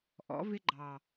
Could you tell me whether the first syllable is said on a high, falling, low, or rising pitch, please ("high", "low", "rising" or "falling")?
rising